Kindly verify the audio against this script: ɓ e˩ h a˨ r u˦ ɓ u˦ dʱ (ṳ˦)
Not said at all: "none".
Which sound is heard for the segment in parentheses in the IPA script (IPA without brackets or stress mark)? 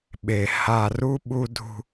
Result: ṳ˦